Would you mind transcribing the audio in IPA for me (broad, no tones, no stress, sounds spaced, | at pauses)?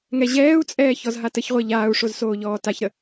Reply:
ŋ ɛ ʑ ɛː u̯ t͡sʼ ɛː ç ɔ z ɦ a t ə ç ʁʷ ɛ ʎ aː u̯ ʂ o z s oː ʎ ɔː t a ç ɾ ə